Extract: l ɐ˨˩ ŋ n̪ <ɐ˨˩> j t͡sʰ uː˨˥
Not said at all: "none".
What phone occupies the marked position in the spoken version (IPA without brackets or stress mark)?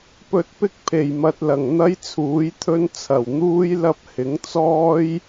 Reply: ɐ˥